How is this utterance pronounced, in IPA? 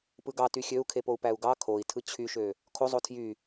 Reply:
p ɯ ɡ ɑ t y xʲ ø u̯ kʰ e p o u̯ p æ u̯ ɡ ɑ kʰ o i̯ tʰ ɯ t͡ɕʰ y ʃ ø | kʰ o zˤ o tʰ j y

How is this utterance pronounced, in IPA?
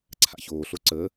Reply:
ǀʰ a̰ ç oː ɬ o ǀ ə

